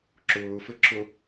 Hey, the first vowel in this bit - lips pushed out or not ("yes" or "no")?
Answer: yes